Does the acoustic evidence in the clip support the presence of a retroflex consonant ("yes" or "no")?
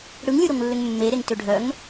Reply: yes